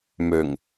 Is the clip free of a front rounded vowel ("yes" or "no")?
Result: no